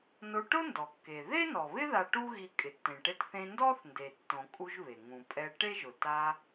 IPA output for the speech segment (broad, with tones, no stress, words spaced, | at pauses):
no˧ʈʊ˥ndɔ˩kːe˩ ðe˥nɔ˩βɪ˥ ða˧ ʈu˥ɣi˧ kʼɪ˩tːẽ˩ʈe˧tθẽ˧ ndɔ˥θnde˩tːõ˩ kʼu˧ʒβe˩ ŋũ˩pʼɛ˧ ʈe˥ʒʊ˩ ta˧